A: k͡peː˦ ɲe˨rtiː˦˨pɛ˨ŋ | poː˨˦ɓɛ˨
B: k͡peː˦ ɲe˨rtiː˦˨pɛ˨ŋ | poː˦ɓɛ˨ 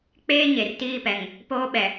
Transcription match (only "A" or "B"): B